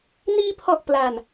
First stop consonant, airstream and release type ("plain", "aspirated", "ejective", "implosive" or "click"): aspirated